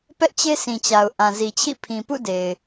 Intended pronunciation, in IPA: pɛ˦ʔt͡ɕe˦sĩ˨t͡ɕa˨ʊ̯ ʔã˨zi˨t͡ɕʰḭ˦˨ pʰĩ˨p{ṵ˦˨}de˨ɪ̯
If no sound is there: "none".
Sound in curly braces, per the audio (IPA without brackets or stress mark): ṵ˦˨